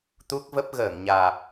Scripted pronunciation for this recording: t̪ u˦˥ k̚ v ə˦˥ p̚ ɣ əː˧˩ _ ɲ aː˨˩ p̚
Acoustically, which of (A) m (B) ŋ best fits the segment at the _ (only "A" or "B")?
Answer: B